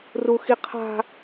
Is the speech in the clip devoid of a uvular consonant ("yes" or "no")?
no